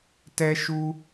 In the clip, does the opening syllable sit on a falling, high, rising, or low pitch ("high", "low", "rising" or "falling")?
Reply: high